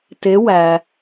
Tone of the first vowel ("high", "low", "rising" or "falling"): rising